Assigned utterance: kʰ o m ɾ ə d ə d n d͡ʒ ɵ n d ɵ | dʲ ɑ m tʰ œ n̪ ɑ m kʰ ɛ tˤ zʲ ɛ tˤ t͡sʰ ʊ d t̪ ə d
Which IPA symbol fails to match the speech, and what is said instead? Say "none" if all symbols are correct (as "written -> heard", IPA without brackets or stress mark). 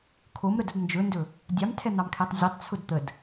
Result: œ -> ɛ